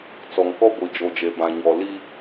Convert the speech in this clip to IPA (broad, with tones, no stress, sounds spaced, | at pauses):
t͡s ɔ˨ ŋ k ɔ˦ ɡʷ i˨ d͡ʒ o˨ d͡ʒ e˨ b ã˨ ɲ ɔ˨ l i˦